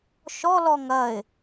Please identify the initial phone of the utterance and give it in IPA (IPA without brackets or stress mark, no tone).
ʃ